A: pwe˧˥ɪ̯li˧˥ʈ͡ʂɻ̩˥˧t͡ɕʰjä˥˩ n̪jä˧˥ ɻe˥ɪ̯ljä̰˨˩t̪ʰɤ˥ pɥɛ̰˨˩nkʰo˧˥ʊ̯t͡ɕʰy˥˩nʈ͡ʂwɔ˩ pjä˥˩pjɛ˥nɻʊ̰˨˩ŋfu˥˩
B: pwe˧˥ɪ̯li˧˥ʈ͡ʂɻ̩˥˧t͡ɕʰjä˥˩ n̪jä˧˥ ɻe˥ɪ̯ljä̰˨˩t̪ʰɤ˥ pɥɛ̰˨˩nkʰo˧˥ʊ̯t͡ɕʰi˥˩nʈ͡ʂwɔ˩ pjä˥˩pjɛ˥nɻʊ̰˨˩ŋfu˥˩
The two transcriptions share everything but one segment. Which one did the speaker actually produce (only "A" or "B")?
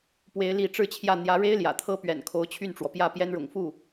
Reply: A